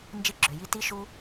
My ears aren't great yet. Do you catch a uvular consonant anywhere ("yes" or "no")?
no